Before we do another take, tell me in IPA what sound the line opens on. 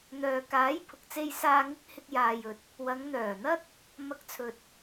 n̪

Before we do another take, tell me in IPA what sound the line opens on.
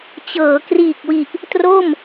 t͡ɕ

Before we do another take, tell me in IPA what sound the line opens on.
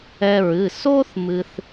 ɛ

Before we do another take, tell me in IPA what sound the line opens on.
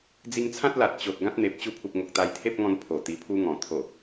d͡z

